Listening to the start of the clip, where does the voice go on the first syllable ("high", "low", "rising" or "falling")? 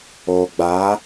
low